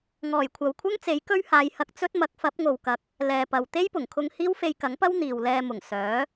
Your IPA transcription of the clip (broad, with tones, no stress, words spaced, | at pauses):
ŋɔː˨˩jkʷʰɐ˨wkʷʰɐ˥ŋ t͡se˨˥jkɵ˥ɥhaː˨˧jhɐ˧k̚ t͡sɵ˥t̚mɐ˨˥k̚ fɐ˨˥p̚ŋo˨wkɐ˨˥k̚ | lɛː˨pɐ˨w t̪e˥jpʊ˨˩ŋkʰʊ˧ŋ hiː˥wfe˧jkɐ˨˥ŋpɐ˥w n̪iː˨wlɛː˧mʊ˨˩ŋ sœː˨˥